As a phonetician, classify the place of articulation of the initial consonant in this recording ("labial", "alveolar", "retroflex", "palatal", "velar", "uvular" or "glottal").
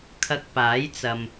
velar